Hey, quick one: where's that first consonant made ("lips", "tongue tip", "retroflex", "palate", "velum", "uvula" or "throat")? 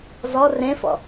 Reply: tongue tip